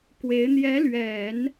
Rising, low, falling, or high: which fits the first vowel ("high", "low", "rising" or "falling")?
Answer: rising